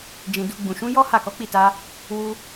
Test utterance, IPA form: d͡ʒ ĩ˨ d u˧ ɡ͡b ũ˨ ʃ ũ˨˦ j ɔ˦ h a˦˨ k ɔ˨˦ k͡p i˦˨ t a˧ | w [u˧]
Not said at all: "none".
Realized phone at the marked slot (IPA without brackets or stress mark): u˧